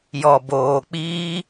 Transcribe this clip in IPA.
jɔ˨boː˨k͡piː˦

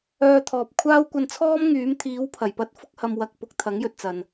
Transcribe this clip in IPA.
œː˧t̪ʰɔː˨p̚kʷʰaː˥w kʷɐ˧nt͡sʰɔː˥mŋyː˨˥m t̪ʰiː˨˥wpʰɐ˨˩j pɐ˧t̚ fʊ˥k̚hɐ˧mwɐ˧k̚ pʊ˨˥k̚t̪ʰɐ˨˥ŋjɵ˨t̚ t͡sɐ˨n

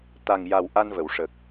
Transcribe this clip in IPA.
t̪a˨˩ŋja˨˩w ʔa˧nvə˨˩˨wʂə˨˩k̚

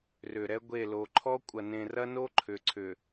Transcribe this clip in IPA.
rʏ˨ɾɛ˦ɡʷe˦˨ lo˨ǃʰɔ˦ kʷʼɐ˨nẽ˨rɐ˦no˦ ǃʰʏ˨ǀʰʏ˨

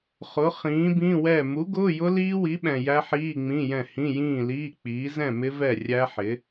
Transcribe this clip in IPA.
χʊ˨˥ χĩː˨˥bĩ˧˥˧wɛ˥˨ mu˨˥ɡʊː˧˥˧jʊ˦˥ liː˦˥wi˨˥ɓɛ̃˨ jæ˦˥ħiː˧˥˧ŋ͡mĩ˧˥˧jɛ̃˥˨ hĩ˧˥˧jĩː˥˨liː˧˥˧k͡piː˨˥ zɛ̃˥˨mɪ˦˥ vɛ˥˨rʲæ˦˥ħɪ˨˥

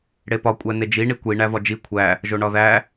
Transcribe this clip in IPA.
ɽepɒ kʷʼæned͡ʒi ɳikʷi ɳævɒd͡ʒi kʷʰæ | ʒoɳɒðæ

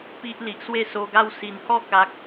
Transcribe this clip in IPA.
pi˦ʔ li˨ʔswe˥˧so˧ɡa˥˧w si˨˩nhɔ˥˧ ka˦k̚

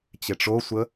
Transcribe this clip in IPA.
t͡ɕeʈ͡ʂosʷə

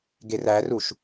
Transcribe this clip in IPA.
ɡeræruʃ

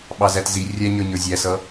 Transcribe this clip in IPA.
ɓɑzætzi rʲæɲə˞ ɲə˞zʲæsʌ

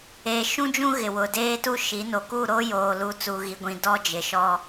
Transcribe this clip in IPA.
eː˨ʃũ˦d͡ʒũ˦ ɣɪ˨wʊ˨ deː˦tu˦ʃi˨˦ no˨ku˦˨ɾo˦ joː˨lu˨ t͡suː˨ɣi˨ɡʷĩ˨ dɔ˦d͡ʒɪ˨ʃɔ˦

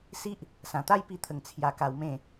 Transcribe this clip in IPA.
si˦ʔ | sã˨˩t̪a˥˧jpi˧t̪ʰə˨˩ŋ t͡sʰja˧ka˧wmẽ˥˧

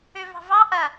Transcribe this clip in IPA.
øvɑ̤vɑ ʔɐ

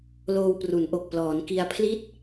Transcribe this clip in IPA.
loː˧wpru˩˦n ʔo˨˩k̚ plɔː˩˦nki˧a̯ pʰli˥˩t̚

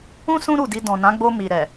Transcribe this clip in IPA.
ũ˦ sũ˦ɾu˦˨di˧ dɔ̃˨nã˨˦ɡ͡bo˧ mi˨ɾɛ˨

